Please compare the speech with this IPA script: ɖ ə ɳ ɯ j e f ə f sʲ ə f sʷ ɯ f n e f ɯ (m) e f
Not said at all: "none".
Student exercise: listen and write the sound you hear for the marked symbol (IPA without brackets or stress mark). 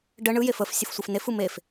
m